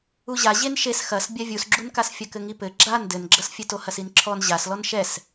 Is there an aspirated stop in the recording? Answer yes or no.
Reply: yes